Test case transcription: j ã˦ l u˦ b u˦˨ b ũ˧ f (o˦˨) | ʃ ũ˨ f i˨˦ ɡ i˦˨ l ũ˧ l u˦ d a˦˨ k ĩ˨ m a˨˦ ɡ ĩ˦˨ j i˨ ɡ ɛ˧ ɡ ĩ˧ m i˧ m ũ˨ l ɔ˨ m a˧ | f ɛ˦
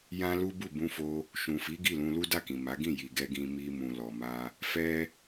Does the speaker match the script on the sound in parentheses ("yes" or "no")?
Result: no